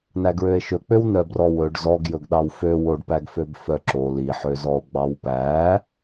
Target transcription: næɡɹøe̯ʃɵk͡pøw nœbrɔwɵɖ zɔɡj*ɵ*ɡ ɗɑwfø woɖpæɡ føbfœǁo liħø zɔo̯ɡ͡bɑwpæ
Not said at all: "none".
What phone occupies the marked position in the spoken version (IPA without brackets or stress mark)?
ɵ